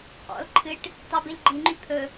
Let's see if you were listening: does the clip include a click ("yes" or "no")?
yes